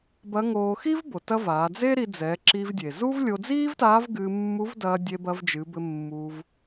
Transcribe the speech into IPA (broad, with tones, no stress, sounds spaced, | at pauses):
b ɐ˧˥ ŋ oː˧ x i˥ v b o˩ t ɐ˧ v aː˩˧ d͡z e˥ ɾ i˧ d͡z ɛ˩˧ ǁ i˧ v dʲ e˩ z u˥ v lʲ o˧ d͡z iː˥ v t aː˧˥ v ɡ ɨː˧ mː u˧˥ v d ɐː˧ dʲ e˧ b ɐ˧ v d͡ʒ ɨ˩˧ b ɘ˧ mː uː˧ v